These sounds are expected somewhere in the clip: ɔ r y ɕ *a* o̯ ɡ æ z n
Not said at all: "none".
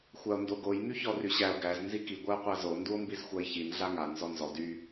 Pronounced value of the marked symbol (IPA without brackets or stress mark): æ